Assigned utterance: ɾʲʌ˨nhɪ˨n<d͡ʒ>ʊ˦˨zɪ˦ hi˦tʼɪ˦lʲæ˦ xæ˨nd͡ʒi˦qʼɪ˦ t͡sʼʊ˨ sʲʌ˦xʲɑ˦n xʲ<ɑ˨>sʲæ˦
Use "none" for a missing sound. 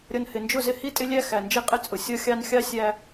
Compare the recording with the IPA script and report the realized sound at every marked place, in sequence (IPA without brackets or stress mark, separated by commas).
d͡ʒ, ɑ˦